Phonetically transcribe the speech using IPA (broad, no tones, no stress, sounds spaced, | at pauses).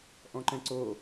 ʔ ɔ̃ ǃ ɛ̃ ǀ o